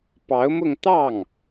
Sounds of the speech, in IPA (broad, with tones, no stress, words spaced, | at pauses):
pɑ˧˥ʊ̯mʊ˥˧ŋ t̪ɑ˥˩ŋ